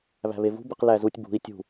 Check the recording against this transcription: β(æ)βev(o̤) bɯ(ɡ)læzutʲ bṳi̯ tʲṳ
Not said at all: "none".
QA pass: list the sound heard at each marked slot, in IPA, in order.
æ̤, ṳ, q

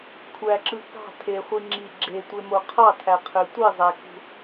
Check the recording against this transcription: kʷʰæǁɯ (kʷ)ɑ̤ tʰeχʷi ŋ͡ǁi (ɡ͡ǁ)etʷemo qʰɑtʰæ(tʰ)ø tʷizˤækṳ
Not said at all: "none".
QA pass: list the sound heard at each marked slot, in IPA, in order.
k, ɡ͡ǁ, qʰ

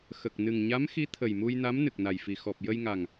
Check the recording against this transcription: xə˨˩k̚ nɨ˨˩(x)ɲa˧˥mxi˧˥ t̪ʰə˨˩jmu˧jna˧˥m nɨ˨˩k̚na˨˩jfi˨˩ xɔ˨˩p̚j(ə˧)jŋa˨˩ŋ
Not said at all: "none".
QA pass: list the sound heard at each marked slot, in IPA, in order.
ŋ, ə˧

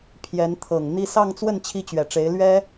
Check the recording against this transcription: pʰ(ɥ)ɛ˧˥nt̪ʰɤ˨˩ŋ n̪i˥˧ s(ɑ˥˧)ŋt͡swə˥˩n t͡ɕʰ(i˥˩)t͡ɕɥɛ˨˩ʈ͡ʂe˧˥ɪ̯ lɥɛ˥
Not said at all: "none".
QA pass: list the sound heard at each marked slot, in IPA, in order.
j, ɑ˥˧, i˥

